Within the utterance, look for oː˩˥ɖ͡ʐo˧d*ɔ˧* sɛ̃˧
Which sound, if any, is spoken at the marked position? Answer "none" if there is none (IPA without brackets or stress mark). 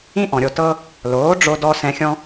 ɔ˧